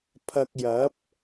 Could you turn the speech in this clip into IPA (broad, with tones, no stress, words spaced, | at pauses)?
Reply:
pʰɐ˧k̚jɐ˨˥p̚